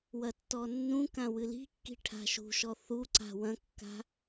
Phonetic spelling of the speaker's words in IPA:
w ɐ tː ɔ nː ũ k ã w ɨ l i̤ kː i̤ ʈʰ a̤ ʃ ṳ ʃ ɔ θ u ǀ a̤ w ɐ̃ kː a̤

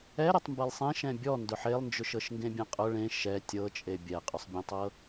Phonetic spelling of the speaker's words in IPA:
ɛ ɾ e tˤ m b e lˠ sˤ ɛ̃ ʃ ɛ̃ bʲ ɔ n d ʊ ħ e lˠ n d͡ʒ ʊ ʃ ɤ ʃ ŋ ɡ ẽ bʲ ɛ̃ qʼ ʊ ɭ ẽ ʃ ɛ tʲ ɤ t͡ʃʼ e bʲ ɛ qʼ ʊ sˤ bʲ ɛ̃ tˤ ɤ

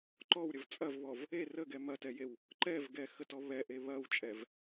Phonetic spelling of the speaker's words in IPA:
ǃ ɔ w ɾʲ ə v t͡sʼ ɐ v β ɔ v | e r ə ɡ ɛ m ɐ t ɛ j e w | ǃ ɛ v ɡ ɛ x ə t ɔ β ɛ ʔ e β ɐ w t͡ʃʼ ɛ v

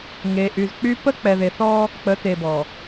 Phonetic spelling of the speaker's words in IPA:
ŋ e˨ ʔ y˨ z k͡p y˦ p ə˦ k͡p ɛ˨ ð e˨ θ ɔ˦ | k͡p ə˨˦ t e˨ b ɔ˨

